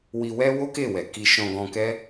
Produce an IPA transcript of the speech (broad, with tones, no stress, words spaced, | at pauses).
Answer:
wi˧wɛ˦ wo˦ke˦˨wɛ˨ ki˧ ʃɔ̃˧ ɡɔ̃˧kɛ˦